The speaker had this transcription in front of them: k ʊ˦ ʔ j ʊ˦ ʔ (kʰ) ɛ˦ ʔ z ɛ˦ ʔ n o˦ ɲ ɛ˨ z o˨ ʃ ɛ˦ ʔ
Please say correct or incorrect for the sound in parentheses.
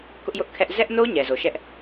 correct